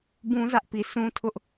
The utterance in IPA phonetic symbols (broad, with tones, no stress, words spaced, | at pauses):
bũ˦zä˦ʔpi˨ sũ˦tʰʊ˦ʔ